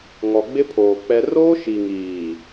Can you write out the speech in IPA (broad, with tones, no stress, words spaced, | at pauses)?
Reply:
ŋɔ˨ɡ͡bɪ˦pʰoː˨ k͡pɛ˦ roː˦ʃi˨ŋiː˨